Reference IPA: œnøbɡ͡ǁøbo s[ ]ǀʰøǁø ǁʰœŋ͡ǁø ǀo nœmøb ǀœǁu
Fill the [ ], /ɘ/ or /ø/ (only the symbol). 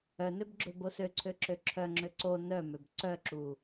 ø